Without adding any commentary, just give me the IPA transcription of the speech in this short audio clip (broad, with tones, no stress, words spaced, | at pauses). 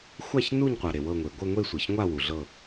xʷa˦˨çnu˦˨ɲqʷa˩ ɾe˩wɤ˦˨ŋʷe˩ ɡʷɤ˦˨ŋʷe˦˨sʷɤ˩çŋʷa˦˨ wu˩ɮɤ˦˨